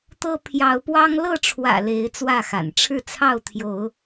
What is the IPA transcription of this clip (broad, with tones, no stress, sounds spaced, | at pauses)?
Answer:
t̪ ɤ˦ pʰ j ɑ˨˦ ʊ̯ p w ɑ˦ ŋ l ɤ˥˨ ʈ͡ʂʰ w ä̰˨˩ l e˨˦ ɪ̯ t͡s w ä˥˨ x a̰˨˩ n ʈ͡ʂʰ ɻ̩˥˨ t͡sʰ ɑ˥˨ ʊ̯ t̪ʰ j o˨˦ ʊ̯